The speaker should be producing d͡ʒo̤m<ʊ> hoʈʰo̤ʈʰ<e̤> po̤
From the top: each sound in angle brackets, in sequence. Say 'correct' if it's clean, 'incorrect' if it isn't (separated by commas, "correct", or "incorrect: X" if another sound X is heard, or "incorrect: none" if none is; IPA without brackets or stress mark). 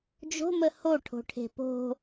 incorrect: ə, correct